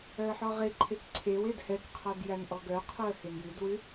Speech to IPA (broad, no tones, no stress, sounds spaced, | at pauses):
œ ə̯ ħ ɔ ʁ e ǃʰ e k ǀʰ e w e d h ɛ k qʰ ɔ d j æ n ʔ ɔ ɡ œ qʰ o ə̯ h e n j ʉ d w ʉ